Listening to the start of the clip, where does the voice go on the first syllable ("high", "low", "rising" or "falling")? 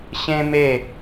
high